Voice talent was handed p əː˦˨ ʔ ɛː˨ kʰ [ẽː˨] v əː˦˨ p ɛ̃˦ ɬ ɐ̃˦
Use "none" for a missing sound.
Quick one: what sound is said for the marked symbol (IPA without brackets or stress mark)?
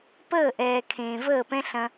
ẽː˨